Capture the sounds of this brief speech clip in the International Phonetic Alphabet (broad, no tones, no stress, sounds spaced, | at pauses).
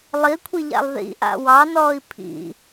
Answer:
lˠ i kʷʰ i ʎ a̰ lˠ ð ḭ ʔ a̰ w ɑ n ɔː i̯ pʰ ḭ